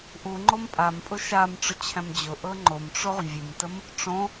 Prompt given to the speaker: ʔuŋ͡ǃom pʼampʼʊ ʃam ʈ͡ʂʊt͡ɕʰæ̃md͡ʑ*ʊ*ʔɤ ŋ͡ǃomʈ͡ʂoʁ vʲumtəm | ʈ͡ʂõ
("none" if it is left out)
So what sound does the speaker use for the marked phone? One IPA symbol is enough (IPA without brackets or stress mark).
ʊ